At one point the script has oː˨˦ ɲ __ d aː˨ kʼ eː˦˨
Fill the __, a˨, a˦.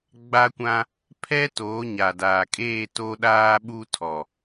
a˨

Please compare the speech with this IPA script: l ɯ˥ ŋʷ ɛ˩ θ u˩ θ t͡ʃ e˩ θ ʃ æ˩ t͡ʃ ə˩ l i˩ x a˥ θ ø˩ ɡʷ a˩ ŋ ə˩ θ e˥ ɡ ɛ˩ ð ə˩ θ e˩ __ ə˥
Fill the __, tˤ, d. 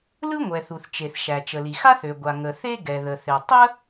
tˤ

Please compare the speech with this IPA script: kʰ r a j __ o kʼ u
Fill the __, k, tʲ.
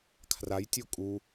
tʲ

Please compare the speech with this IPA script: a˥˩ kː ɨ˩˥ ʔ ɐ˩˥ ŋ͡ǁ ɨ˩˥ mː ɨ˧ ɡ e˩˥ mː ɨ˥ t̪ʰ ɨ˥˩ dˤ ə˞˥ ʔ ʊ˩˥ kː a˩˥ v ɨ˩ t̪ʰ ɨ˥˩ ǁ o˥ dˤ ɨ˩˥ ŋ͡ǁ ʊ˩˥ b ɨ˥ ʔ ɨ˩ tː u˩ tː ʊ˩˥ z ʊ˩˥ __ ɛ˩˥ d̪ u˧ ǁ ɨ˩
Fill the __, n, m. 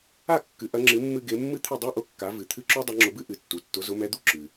m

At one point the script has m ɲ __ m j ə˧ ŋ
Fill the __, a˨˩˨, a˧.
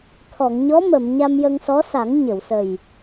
a˧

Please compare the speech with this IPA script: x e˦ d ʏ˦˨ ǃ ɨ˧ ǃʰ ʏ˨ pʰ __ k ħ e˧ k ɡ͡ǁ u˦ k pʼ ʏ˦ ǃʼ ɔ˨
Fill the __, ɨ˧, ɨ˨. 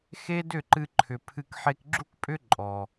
ɨ˧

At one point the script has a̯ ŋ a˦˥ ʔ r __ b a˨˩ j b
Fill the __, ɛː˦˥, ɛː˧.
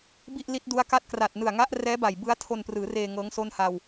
ɛː˦˥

